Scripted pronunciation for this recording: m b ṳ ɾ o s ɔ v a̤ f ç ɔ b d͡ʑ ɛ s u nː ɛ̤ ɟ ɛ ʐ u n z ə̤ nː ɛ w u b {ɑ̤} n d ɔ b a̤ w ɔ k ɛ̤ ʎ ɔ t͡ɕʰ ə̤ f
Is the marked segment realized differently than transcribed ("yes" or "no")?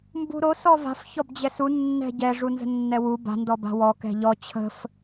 yes